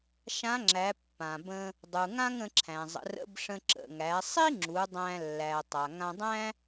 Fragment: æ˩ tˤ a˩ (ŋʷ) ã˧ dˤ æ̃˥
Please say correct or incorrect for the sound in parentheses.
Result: incorrect: ŋ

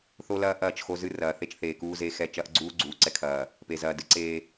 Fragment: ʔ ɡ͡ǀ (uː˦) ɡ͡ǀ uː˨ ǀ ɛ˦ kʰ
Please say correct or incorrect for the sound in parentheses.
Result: correct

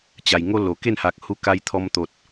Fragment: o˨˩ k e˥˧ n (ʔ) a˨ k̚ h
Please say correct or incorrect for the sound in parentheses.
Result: incorrect: h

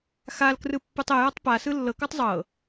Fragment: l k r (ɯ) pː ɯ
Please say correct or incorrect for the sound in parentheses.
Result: correct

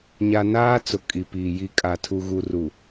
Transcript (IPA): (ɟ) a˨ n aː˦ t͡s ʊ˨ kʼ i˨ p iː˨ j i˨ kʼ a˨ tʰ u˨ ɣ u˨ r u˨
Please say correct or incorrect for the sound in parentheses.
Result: incorrect: ɲ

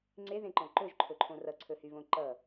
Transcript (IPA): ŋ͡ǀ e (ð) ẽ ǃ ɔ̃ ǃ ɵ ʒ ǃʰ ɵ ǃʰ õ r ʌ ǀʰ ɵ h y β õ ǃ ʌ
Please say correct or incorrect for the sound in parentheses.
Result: correct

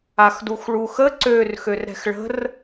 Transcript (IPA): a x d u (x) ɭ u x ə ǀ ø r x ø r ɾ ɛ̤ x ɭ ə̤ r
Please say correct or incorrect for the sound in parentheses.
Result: correct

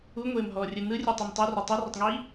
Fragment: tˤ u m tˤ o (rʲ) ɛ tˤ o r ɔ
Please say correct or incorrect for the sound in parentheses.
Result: incorrect: r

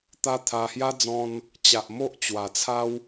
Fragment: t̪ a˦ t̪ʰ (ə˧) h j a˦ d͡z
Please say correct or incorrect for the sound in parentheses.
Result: incorrect: a˧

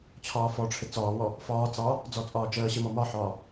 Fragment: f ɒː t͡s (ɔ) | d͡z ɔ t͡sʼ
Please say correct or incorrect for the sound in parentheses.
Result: incorrect: ɑ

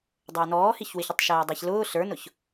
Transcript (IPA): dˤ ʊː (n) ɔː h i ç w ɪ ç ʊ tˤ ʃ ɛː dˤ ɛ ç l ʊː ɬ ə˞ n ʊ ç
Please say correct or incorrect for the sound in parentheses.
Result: correct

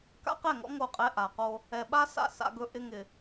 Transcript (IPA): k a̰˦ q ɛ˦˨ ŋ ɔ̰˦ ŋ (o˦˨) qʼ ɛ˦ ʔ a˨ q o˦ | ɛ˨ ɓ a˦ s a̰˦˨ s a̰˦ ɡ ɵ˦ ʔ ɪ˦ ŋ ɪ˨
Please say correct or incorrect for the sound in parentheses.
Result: correct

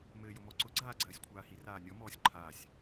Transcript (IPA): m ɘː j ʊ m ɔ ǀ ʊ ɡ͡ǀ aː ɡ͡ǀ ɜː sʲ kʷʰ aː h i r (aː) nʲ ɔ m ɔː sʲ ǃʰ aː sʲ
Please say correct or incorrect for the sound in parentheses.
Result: correct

